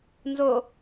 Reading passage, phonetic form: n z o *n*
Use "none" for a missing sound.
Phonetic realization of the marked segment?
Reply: none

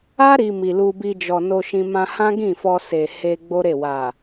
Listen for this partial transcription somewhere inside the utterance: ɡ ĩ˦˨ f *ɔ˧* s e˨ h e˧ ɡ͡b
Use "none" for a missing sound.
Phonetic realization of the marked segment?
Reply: ɔ˧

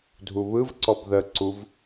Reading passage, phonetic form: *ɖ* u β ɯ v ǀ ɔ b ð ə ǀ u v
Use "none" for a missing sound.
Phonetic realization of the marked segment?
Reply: dʱ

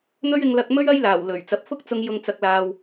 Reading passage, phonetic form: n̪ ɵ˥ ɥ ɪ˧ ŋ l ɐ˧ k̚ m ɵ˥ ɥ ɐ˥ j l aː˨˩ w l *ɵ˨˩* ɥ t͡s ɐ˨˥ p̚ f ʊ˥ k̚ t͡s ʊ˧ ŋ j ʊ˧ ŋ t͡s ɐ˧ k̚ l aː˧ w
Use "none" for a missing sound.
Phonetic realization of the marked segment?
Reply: ɵ˨˩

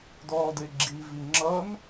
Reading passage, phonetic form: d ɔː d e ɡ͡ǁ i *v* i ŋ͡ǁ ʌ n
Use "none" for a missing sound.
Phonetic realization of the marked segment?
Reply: v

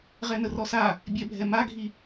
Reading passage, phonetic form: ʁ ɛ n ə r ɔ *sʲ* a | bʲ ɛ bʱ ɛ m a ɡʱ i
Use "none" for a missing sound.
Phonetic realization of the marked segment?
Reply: s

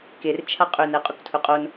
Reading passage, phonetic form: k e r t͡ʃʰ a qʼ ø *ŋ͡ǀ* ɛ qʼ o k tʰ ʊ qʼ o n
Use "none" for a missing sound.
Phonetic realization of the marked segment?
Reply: n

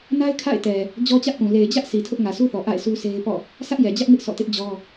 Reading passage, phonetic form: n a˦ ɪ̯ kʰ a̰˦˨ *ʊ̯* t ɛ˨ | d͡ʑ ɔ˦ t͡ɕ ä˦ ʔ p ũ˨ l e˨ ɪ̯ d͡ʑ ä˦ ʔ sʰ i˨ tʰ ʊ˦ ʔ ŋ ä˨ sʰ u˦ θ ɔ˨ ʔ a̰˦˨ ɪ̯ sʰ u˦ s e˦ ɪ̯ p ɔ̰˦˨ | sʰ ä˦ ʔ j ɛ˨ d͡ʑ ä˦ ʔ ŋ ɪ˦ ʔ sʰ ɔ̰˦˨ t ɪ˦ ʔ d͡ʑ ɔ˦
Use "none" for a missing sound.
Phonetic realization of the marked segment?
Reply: ɪ̯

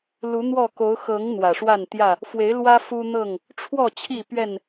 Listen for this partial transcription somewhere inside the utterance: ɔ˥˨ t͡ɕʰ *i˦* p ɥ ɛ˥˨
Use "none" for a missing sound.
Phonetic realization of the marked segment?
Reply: i˥˨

